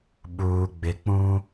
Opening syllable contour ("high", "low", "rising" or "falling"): low